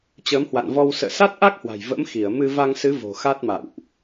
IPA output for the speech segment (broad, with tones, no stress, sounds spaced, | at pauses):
t͡ɕ əː˨˦ m h w a̰˧˨ n v ɔ˧ w s ə̰ː˧˨ s a˦˥ t̚ ʔ a˦˥ k̚ h w a̤˨˩ j v ə̰˧˥ m x i˧˩ ə̯ m ɨ˧ v a˧ ŋ s ɨ˨˦ v o̤˨˩ x a˦˥ t̚ m a̰˧˨ w ʔ